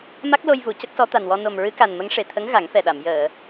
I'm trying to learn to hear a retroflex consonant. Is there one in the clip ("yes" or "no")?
yes